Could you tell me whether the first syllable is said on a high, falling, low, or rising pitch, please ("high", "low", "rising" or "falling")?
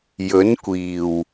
rising